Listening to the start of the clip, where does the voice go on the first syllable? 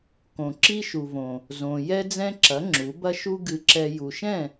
low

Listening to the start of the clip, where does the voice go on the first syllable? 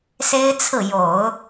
high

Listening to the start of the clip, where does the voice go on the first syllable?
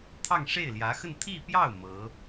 falling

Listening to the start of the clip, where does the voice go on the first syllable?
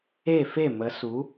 falling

